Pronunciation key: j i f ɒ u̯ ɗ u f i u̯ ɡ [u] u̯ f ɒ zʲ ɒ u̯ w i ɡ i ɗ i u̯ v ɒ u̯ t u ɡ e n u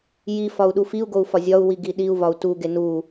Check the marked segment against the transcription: incorrect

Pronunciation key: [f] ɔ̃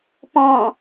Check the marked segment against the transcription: incorrect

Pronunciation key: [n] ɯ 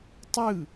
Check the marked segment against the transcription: incorrect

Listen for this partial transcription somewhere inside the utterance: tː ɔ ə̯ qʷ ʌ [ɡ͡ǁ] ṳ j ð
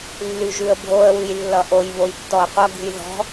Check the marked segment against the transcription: incorrect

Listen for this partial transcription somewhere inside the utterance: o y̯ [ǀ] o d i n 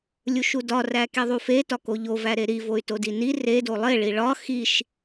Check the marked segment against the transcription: incorrect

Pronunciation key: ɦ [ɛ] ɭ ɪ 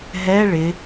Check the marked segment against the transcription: correct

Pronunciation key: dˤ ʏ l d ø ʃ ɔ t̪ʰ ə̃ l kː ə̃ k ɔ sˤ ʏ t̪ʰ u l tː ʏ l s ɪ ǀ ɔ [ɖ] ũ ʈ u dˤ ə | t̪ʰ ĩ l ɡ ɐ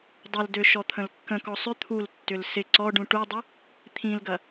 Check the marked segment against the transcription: correct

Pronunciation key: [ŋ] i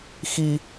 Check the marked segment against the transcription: incorrect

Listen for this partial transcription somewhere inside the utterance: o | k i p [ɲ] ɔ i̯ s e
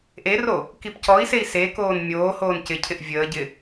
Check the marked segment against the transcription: incorrect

